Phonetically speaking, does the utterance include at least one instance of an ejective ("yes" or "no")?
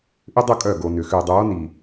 yes